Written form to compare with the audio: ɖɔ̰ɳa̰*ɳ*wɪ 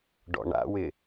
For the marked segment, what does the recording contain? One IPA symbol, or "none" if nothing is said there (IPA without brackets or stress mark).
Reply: none